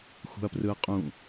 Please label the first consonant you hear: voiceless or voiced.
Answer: voiceless